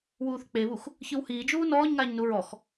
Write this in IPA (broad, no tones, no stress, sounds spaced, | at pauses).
w uː θ k͡p e β u x | ç ɯ w h iː d͡ʒ uː n ɔː ɲ ŋ aː ɲ n u ɹ ɔ x